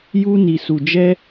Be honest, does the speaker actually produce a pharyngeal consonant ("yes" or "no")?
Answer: no